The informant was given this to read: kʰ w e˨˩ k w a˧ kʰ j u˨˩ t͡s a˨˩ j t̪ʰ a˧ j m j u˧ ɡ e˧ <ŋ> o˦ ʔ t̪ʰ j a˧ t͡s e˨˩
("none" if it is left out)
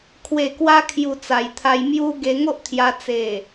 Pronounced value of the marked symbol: ŋ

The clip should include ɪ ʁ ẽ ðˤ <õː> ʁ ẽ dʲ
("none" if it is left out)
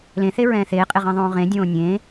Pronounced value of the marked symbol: õː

